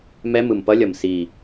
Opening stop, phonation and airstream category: plain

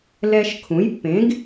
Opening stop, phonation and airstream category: aspirated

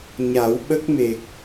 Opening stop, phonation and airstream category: implosive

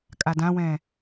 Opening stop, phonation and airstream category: ejective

